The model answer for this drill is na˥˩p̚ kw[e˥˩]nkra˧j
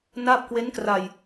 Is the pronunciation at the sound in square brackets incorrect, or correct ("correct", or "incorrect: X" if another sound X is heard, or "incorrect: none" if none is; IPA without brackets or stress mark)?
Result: incorrect: e˦˥